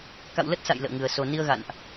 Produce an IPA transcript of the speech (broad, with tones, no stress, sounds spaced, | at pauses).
k a̰˧˨ w l ə˦˥ t̚ s a̰˧˨ j l ə̰ː˧˨ ŋ ɨ˨˩ ə̯ s o˨˩ n i˧ ə̯ ɣ a̰˧˨ n ʔ